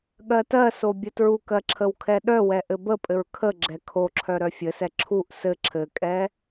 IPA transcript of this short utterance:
ɠ ɜ t ɜ s o bʲ ɘ t ɹ u k ɜ ǁʰ ə w kʰ ɛ ɗ œ w ɛ ʔ ɘ b ə pʼ ɘ ɹ kʰ ə ɡ͡ǁ ɛ kʰ o ǁʰ œ ɾ œ fʲ ɘ s ɛ ǁʰ u ʔ s ɘ ǁʰ ɘ kʼ ɛ

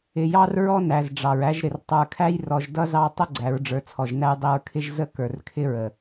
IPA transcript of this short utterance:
ɪ˨ j ɑ˦ r ɹ ɔ˦ n æ˨ z ɖ͡ʐ ɑ˨ ɹ æ˦ ʒ ɾ ɪ˨ r tˤ ə˞˨ kʰ æ˦ j r ɔ˨ ʒ d ʌ˦ z ɑ˦ tˤ ə˦ ɡ͡ǀ æ˨˦ ɹ ɖ͡ʐ ə˞˨ t͡sʰ ɔ˨ ʒ n æ˦ j dˤ i˨ ɹ kʰ ɪ˦ ʒ z ə˦ k ə˞˨ r kʰ ɪ˦ ɹ ə˨

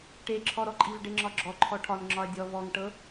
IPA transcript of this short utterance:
ʈ e ǁʰ ɔ ɾ ɔ ǃʼ i v ɖ e ŋ͡ǁ ɒ ɡ͡ǁ ɔ ǃʰ ɔ ʈʰ ɒ n ŋ͡ǁ ɒ ɐ̯ dʲ ɔ v ɔ ŋ ʈ ɤ

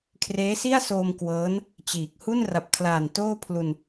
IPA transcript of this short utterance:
kʰ r eː˦˥ s i˥˩ a̯ s oː˧ m k w ɤː˦˥ n | t͡ɕ iː˨˩ k̚ h u˥˩ n r a˨˩ p̚ kʰ l aː˨˩ n t oː˥˩ pʰ l u˧ n

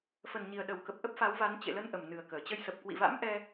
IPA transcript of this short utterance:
f ə˨˩ n ɲ i˨˩ ə̯ ɗ ə˨˩ w k ə˨˩ p̚ ʔ ə˦˥ p̚ f a˨˦ w v a˨˦ n t͡ɕ ḛ˧˨ l ə˧ n ʔ ə˨˩ m n ɨ˨˩ ə̯ k əː˧˩ t͡ɕ ə˧ j s ə˨˩ p̚ k w ḭ˧˨ v a̰˧˥ m ʔ ɛ˧

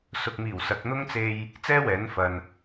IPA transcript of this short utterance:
s ʊ˨ k̚ m iː˨˩ w s ɐ˨˥ k̚ n̪ ʊ˥ ŋ t͡s e˧ j | t͡s ɛː˥ w ɛː˨˥ n f ɐ˨ n

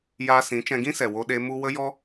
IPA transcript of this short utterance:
j aː˧ s ĩ˨˦ t͡ʃ ɛ̃˧ ɡ ĩ˦ s ɛ˨ w o˧ ɗ e˧ m u˦ w ə˦ j ɔ˦

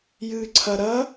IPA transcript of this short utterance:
j ɨː ǀʰ ɐ ɾ ɐ

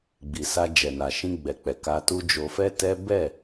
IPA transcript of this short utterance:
ɡ͡b i˨ s a˧ d͡ʒ ɛ˨ n a˨ ʃ ĩ˧ ɡ͡b ɛ˨ k͡p ɛ˨ k a˧ t u˦ d͡ʒ o˧ f ɛ˦ t ɛ˦ b ɛ˦˨

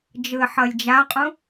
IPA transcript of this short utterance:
d͡ʒ ɯ ə̯ ħ ʌ lʲ d͡ʒ a qʼ ũ

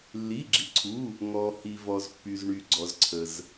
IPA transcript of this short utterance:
lː i˩˧˩ ɡ͡ǁ i˩ ǀʰ u˩˧˩ | ŋ ɔ˩ h i˩ v ɔ˩ z pː y˩ z ɳ y˩ ɡ͡ǀ ɔ˩ z ǀʰ ə˩ z

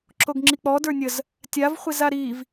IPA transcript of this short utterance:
ǁ o ɡ ŋ͡ǁ i k͡p ɔ d ə˞ nʲ ə z | tʲ a v χʷ i z a ɾ i v

